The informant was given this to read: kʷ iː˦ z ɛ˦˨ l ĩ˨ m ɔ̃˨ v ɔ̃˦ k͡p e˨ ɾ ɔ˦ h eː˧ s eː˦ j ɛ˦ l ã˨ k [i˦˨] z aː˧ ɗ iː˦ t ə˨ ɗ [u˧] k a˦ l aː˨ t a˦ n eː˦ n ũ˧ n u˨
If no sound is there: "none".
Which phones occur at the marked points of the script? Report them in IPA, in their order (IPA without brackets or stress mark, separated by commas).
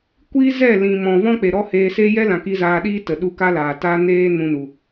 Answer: i˧, u˧